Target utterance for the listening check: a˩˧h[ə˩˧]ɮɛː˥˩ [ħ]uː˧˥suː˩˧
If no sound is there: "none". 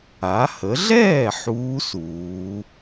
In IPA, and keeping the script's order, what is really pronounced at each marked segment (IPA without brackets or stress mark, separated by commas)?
ə˩˧, ħ